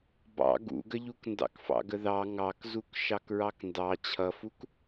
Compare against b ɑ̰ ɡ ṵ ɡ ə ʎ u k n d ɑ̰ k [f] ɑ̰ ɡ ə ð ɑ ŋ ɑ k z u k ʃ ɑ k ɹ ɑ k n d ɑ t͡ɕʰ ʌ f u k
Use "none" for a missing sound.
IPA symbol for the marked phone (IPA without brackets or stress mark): f